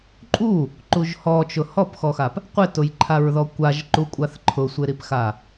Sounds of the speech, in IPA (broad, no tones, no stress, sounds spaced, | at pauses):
ǃʼ u | ǃ u ʒ h ɔ t͡ʃ ʊ h ɔ p x ɔ x a p | qʷ ɪ t ʊ j ǃʰ a ɹ ð ɔ kʷ a ʒ ǃ u kʷʼ a θ ǃʰ ʊ sʷ ɪ ɾ i p x a